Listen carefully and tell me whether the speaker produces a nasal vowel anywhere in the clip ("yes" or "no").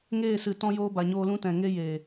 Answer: yes